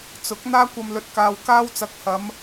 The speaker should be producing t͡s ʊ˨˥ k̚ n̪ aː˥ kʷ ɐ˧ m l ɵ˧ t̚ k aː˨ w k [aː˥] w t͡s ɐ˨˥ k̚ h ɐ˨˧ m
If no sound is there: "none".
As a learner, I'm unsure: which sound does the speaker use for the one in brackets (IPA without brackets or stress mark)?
aː˥